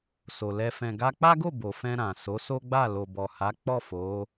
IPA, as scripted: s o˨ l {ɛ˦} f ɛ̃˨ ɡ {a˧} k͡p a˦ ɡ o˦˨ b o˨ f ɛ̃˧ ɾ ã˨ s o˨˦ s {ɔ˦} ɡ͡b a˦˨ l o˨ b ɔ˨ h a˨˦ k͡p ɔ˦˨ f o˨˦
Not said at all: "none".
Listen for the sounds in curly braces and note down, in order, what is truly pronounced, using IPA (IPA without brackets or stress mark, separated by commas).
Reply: ɛ˧, a˧, o˦